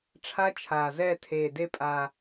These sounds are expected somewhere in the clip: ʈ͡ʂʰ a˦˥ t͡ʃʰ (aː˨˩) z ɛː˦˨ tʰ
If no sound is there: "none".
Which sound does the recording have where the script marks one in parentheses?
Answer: aː˨˩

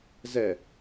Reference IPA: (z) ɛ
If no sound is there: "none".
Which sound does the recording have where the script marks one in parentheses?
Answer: z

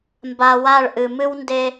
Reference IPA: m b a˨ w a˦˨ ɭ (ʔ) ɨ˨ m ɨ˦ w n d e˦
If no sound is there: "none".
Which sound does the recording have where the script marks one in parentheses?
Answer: ʔ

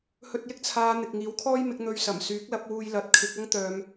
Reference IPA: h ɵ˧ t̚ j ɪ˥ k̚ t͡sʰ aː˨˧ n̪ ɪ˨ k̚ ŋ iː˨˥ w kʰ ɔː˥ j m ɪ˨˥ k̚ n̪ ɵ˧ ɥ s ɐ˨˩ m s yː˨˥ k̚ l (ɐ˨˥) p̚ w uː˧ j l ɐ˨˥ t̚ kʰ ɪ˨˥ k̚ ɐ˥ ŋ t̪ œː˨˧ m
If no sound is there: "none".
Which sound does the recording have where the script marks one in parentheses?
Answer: ɐ˨˥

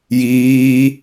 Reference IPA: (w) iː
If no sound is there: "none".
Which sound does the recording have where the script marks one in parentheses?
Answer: j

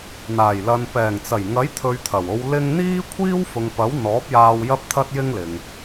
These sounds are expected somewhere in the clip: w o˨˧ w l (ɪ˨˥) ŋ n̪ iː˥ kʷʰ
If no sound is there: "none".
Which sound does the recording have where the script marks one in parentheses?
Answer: ɪ˧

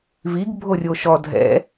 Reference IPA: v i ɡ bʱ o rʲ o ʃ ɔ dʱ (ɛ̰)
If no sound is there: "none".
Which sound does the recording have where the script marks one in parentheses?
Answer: ɛ̰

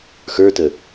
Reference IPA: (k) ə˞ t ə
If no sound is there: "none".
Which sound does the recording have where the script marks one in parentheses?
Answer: x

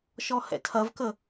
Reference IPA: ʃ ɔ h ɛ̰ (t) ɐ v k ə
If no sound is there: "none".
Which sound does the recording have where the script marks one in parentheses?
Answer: tʰ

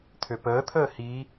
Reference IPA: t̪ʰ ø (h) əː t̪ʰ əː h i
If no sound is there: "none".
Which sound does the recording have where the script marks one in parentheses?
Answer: p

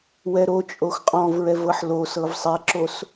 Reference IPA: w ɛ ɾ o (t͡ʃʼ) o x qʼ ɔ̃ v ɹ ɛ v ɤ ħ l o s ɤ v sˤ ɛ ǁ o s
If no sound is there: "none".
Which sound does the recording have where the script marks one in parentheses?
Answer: t͡ʃʼ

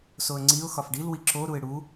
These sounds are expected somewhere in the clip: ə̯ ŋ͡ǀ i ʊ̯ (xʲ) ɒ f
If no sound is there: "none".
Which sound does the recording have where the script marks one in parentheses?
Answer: x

